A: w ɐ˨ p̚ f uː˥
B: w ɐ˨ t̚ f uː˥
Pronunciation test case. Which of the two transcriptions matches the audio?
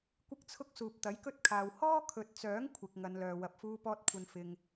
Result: A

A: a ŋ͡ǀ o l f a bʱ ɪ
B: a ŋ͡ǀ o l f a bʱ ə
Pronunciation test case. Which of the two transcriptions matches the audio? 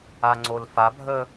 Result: B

